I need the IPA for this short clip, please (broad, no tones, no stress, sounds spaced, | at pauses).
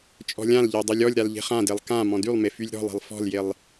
t͡ʃʼ ɔ̤ lʲ ã l ʎ e dˤ e lʲ ɔ lʲ ɾ a l ʎ e̤ χ ã d e lˠ k ã m ɔ̃ d y lˠ m e f y lʲ ɾ ɔ̤ lˠ e̤ lˠ f ɔ̤ l j e lˠ